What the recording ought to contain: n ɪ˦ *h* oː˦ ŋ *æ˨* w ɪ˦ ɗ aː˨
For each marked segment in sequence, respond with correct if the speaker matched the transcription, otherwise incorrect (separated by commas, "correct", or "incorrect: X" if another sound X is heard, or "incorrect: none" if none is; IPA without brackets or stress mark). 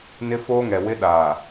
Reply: incorrect: f, incorrect: ɛ˨